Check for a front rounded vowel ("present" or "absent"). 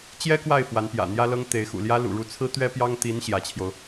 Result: absent